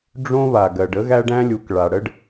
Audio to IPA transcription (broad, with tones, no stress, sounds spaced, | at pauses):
ɖ͡ʐ õ˦ β a˩ ɡ ɜ˩ ɖ ə˥ ɣ æ˦ ɖ æ̃˥ lʲ u˨ k ɭ a˩ ɽ ə˥ ɖ